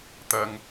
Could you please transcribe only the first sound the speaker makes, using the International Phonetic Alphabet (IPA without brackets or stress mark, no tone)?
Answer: t̪